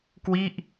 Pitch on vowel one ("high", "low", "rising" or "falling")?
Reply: falling